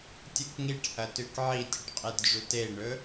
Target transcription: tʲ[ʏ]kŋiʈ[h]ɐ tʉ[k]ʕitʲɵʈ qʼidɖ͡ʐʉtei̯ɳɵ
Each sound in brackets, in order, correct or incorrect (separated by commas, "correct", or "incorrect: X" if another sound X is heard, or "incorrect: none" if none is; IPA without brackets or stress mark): incorrect: ɨ, correct, correct